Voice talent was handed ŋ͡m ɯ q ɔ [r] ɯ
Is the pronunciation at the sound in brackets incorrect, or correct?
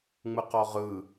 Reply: incorrect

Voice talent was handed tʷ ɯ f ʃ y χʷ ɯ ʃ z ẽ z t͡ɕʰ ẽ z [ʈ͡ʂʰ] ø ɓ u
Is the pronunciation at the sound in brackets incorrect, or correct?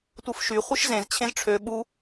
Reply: correct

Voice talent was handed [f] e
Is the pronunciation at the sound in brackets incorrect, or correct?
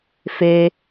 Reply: correct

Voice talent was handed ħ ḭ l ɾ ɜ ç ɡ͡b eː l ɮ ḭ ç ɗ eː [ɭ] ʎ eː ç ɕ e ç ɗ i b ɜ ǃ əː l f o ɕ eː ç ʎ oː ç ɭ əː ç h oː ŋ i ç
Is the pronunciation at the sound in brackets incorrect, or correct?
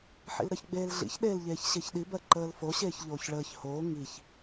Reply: incorrect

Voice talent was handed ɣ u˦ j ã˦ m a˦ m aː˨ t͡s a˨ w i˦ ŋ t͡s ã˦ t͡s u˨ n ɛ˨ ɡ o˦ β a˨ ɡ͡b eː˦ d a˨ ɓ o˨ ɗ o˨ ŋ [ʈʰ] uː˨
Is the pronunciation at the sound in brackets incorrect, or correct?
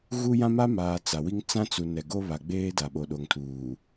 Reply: incorrect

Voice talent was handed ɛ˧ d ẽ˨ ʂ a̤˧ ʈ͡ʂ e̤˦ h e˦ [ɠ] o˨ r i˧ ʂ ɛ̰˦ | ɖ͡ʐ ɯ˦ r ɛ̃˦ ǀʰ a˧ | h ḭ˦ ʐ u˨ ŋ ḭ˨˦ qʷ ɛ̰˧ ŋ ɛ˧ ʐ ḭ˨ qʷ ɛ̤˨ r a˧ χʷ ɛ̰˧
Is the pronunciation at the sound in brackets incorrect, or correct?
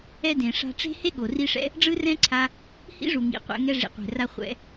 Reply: correct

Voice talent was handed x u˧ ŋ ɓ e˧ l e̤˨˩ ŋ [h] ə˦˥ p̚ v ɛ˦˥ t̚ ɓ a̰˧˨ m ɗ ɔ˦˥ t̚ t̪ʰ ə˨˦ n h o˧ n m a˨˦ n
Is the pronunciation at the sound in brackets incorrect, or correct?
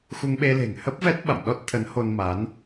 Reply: correct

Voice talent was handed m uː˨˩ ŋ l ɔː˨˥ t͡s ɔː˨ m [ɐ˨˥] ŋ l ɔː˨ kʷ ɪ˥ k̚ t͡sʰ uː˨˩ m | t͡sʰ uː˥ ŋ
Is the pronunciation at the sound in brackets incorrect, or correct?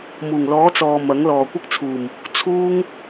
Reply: correct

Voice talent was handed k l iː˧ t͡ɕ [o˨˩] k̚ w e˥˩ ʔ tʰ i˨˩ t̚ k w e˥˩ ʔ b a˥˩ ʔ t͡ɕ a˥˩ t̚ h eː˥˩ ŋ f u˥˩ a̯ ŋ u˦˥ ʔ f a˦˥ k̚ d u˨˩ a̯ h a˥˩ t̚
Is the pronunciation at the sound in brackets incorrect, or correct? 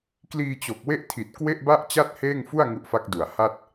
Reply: correct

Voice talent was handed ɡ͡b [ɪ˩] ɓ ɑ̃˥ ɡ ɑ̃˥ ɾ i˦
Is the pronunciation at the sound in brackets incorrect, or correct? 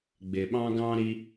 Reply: correct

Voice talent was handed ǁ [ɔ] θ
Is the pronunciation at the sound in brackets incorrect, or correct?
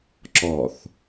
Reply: correct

